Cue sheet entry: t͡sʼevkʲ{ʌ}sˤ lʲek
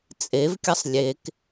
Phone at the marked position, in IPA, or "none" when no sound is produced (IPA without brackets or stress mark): ʌ